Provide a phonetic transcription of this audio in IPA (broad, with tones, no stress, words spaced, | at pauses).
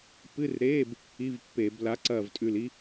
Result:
pɨ˧˥˧rɾeː˧˥˧b | i˧˥˧vpːe˧˩˧b la˨˥ ǀɐː˦˨vtʼʉ˦˨li˥